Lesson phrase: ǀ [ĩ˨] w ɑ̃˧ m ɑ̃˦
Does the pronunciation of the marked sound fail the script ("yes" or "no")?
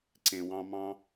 yes